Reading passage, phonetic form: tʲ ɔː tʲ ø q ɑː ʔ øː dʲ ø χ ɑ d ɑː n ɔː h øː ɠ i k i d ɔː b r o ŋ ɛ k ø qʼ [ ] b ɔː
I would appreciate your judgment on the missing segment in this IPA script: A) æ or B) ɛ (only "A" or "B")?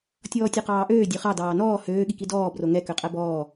A